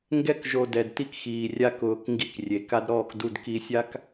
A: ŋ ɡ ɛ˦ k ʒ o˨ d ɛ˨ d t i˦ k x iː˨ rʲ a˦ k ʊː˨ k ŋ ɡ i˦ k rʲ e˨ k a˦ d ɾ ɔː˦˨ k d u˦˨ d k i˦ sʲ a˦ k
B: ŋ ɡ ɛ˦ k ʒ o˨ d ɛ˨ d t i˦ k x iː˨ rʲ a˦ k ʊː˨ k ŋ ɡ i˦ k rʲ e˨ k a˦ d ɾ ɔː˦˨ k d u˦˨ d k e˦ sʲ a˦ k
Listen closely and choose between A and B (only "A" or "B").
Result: A